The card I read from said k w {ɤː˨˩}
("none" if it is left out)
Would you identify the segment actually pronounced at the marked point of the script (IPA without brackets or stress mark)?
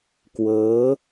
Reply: ɤː˦˥